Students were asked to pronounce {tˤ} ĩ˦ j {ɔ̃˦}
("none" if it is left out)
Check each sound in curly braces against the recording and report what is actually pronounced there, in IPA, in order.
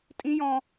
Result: tʼ, ɔ̃˦

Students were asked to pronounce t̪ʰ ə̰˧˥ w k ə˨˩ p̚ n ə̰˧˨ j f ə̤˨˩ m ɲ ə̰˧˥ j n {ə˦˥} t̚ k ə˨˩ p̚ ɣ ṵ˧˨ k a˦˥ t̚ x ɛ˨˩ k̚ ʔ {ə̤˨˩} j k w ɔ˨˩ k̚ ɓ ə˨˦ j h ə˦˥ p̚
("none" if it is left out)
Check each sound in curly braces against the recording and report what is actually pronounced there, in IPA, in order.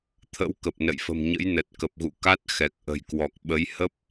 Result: ə˨˩, ə̤˨˩

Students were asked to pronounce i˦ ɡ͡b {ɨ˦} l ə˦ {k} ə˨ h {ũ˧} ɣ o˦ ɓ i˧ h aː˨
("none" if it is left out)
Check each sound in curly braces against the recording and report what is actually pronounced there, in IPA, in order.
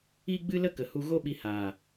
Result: ɨ˦, k, u˧

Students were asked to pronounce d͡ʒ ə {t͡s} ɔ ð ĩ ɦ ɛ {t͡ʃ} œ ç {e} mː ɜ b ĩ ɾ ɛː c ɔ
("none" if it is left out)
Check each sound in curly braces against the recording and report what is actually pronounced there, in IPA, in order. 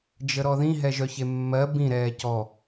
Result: ɾ, ʒ, e

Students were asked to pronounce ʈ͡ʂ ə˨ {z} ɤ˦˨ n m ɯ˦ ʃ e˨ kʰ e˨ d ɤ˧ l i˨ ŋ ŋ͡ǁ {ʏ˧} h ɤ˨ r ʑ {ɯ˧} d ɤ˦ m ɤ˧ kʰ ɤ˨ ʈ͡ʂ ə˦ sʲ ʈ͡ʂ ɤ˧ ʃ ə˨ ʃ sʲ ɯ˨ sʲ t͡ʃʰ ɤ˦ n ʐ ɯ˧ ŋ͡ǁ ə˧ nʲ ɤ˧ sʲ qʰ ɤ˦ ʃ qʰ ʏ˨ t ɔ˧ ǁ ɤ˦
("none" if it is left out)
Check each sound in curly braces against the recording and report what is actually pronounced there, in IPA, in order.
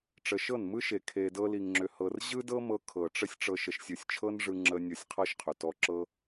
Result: ʃ, ʏ˨, ɯ˦

